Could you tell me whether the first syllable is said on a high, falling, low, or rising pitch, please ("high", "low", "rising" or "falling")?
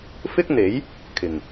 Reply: high